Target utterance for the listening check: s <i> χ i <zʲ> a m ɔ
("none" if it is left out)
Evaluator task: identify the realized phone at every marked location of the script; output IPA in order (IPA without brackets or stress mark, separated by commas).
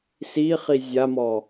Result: i, zʲ